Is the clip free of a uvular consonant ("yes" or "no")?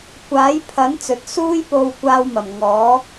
yes